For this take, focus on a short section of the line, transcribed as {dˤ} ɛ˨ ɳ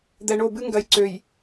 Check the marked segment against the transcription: incorrect: d̪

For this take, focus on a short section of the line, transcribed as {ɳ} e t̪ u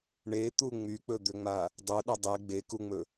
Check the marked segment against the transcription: correct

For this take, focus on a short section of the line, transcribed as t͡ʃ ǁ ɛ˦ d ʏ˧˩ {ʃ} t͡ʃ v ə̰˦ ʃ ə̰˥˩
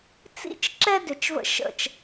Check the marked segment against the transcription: incorrect: none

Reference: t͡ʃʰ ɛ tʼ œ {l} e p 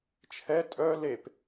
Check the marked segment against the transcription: correct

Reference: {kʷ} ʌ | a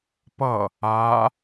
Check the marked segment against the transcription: incorrect: p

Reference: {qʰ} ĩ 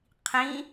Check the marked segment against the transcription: correct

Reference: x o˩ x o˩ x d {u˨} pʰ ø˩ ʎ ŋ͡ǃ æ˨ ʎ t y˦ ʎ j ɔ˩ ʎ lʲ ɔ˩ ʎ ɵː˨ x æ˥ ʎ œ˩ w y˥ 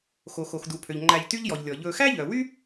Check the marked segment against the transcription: incorrect: u˩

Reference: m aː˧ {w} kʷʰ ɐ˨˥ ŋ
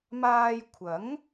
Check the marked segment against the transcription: incorrect: j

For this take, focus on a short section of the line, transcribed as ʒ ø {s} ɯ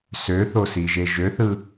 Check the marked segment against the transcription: incorrect: θ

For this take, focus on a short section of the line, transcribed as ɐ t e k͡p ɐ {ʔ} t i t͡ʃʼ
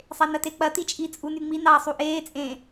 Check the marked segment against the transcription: incorrect: none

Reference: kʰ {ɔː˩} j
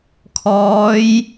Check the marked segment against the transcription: incorrect: ɔː˧˥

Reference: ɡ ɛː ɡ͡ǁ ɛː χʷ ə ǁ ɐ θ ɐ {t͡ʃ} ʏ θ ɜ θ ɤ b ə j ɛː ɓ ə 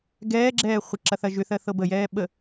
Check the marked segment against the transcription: incorrect: ʒ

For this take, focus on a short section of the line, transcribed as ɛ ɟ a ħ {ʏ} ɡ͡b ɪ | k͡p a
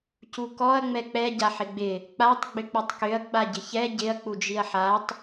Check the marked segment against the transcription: incorrect: ɪ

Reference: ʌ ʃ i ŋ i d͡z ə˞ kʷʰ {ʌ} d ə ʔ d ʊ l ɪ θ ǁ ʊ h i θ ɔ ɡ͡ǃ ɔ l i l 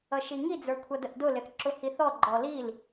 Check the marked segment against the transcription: correct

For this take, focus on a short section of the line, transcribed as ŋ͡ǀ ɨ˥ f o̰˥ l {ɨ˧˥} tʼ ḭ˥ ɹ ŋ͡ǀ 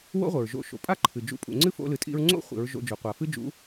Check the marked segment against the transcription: incorrect: ɨ˧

